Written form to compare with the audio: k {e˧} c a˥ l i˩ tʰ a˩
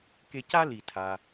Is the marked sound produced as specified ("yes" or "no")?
yes